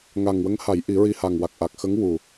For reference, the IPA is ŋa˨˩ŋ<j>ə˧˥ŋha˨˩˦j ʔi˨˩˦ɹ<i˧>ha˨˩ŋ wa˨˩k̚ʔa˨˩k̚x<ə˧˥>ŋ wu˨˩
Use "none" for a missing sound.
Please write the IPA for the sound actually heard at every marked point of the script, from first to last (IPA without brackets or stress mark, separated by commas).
w, i˧, ə˧˥